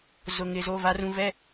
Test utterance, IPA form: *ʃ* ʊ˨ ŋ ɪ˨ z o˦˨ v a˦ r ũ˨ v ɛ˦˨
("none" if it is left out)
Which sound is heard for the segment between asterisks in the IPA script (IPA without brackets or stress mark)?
z